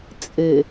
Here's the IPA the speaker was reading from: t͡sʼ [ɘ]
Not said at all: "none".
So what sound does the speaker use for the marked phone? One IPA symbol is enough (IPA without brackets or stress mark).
ɘ